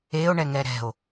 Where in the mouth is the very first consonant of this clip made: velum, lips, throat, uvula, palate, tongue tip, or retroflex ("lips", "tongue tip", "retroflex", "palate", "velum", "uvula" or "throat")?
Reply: retroflex